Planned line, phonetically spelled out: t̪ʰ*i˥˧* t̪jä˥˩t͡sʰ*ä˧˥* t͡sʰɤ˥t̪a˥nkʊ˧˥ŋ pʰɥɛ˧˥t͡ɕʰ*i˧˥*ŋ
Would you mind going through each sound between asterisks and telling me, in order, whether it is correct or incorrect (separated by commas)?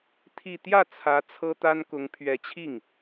correct, correct, incorrect